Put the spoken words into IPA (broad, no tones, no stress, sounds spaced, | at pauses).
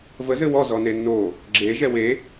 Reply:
v ə z ɘ w ɔ z ɔ n e nː o | ɡ͡ǁ e ʒ ɛ w e